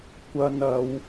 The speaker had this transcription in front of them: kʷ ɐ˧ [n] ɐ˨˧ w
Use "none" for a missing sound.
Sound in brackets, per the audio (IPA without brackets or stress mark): n